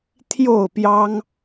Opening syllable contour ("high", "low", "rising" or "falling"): falling